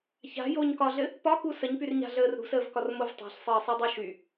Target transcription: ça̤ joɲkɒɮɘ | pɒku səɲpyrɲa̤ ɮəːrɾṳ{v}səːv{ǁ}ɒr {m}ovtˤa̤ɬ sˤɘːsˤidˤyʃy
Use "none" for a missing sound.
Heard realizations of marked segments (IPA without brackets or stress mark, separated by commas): none, k, m